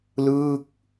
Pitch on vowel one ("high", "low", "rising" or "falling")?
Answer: falling